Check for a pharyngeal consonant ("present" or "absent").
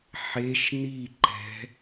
present